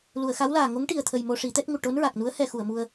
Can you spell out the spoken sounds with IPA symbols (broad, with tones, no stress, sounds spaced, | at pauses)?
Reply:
l u˨˩˨ ə̯ x a˧˥ w l aː˨˩ ŋ o˧˥ ŋ ʈ i˨˩ ə̯ t̪ʰ ə˨˩ j m o˧ ʂ i˨˩˦ t̪ ɛ˦˥ t̚ ŋ u˨˩ ʈ o˧˥ n ɹ a˨˩ k̚ n u˧˥ ə̯ h ɛ˧ x u˨˩˨ ə̯ m u˧ ə̯